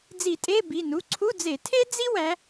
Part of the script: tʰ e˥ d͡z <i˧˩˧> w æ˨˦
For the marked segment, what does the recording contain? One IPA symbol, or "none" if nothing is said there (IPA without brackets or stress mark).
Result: i˥